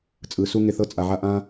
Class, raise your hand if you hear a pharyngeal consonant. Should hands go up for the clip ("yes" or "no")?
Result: yes